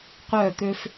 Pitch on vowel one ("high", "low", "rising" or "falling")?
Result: falling